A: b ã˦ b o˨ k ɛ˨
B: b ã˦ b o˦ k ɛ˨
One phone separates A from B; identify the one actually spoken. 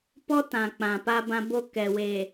B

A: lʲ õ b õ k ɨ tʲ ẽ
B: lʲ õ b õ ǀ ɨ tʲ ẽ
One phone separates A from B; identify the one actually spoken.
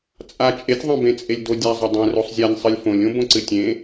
B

